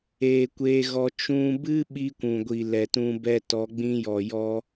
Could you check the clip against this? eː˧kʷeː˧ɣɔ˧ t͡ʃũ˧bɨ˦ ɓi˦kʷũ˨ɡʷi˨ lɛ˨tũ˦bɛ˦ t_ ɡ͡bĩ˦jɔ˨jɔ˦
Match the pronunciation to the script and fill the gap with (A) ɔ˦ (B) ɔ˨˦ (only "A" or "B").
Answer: B